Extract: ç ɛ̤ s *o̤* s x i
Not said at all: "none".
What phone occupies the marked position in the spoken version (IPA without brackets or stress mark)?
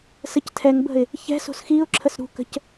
o̤